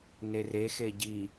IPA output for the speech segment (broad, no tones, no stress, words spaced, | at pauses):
nere xeɟi